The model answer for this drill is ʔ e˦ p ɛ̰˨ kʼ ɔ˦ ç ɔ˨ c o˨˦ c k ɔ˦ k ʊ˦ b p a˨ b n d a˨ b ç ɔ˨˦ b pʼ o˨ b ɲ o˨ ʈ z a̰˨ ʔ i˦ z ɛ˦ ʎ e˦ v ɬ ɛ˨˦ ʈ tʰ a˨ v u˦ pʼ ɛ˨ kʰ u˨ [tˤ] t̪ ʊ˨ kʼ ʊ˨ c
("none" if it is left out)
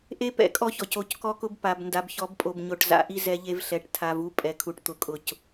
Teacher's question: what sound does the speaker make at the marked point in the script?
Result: ʈ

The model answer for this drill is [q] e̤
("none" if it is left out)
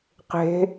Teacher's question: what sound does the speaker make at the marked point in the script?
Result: q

